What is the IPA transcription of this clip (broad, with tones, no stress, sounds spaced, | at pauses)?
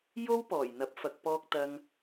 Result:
j o˥ w p ɔː˨˩ j n̪ ɐ˨˥ p̚ f ɐ˨ k̚ p ɔː˨ k̚ t̪ ɐ˨ ŋ